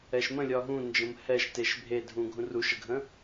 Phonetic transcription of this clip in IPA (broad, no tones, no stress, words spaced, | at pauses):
ɛʃmə̃ lʲɒɦũ nd͡ʒə̃mhɛʃ teʃbʱedʱũ ɡʱũruʃəɡʱə̃